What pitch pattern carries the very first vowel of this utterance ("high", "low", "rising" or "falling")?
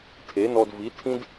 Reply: rising